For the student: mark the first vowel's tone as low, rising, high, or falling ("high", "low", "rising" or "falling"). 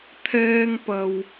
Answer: high